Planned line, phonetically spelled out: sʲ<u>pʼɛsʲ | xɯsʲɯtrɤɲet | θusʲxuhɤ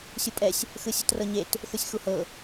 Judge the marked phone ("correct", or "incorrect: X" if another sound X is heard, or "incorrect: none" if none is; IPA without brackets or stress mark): correct